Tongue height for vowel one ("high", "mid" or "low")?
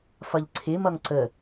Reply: mid